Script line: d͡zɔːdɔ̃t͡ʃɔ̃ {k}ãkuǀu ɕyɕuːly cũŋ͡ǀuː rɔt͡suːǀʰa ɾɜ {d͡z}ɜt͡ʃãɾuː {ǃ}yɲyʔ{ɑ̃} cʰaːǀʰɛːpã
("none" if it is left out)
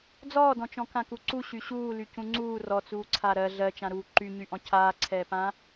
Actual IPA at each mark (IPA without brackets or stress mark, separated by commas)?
k, ɮ, ǃ, ɔ̃